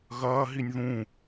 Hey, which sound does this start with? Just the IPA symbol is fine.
ɣ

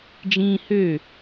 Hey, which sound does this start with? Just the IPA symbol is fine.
d͡ʒ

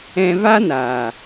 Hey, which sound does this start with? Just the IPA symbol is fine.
ɛ̃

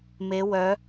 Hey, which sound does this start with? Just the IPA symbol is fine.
m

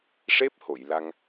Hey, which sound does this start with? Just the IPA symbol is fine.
ʂ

